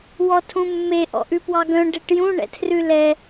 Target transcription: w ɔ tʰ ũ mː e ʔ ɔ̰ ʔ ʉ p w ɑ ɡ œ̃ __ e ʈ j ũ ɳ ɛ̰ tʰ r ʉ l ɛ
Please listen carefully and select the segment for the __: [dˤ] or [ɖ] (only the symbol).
ɖ